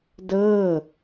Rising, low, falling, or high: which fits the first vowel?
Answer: falling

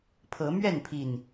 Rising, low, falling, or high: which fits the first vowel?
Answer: rising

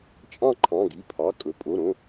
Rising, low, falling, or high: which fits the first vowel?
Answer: falling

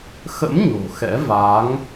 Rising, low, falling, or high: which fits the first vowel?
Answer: rising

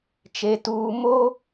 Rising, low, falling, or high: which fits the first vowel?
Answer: low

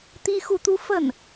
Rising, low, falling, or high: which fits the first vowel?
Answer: high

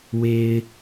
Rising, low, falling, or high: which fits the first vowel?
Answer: low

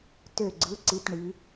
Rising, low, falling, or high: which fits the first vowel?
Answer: falling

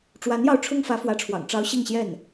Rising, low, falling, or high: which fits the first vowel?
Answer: rising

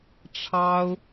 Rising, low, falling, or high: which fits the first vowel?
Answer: high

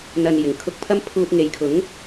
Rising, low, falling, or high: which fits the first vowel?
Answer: low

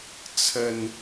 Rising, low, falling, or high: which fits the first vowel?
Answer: low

